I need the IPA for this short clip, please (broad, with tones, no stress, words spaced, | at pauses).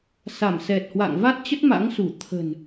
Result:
sa˧˩msɛ˨˩t̚hwa̰˧˨ŋ va˦˥t̚t͡ɕə˦˥t̚ma̰˧˥ŋsu˧˩ t̪ʰə̤˨˩n